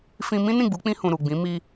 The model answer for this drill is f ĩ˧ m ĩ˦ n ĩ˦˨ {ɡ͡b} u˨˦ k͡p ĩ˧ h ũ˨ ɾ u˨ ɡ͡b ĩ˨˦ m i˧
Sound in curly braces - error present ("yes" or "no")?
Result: no